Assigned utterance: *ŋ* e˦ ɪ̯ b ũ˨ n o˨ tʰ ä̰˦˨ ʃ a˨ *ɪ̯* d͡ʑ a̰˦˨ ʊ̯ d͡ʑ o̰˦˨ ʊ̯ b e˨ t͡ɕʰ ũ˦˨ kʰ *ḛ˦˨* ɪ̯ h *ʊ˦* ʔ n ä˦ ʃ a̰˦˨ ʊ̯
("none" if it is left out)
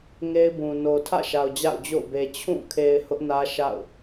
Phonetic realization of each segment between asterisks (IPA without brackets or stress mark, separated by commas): ŋ, ʊ̯, e˨, ʊ˦